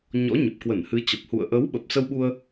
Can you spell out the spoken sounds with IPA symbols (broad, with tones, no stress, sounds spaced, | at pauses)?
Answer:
ɲ ɔ̰˧˥ ɲ ə˨˩ p̚ k w ə˧˩ n h ɨ˨˦ t͡ɕ ə˨˩ p̚ h ṵ˧˨ ə̯ ʔ ə˨˦ w ɓ ə˨˩ p̚ s ə˧ w ɓ u˧ ə̯